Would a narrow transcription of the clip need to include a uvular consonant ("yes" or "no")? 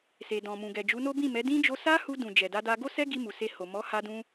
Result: no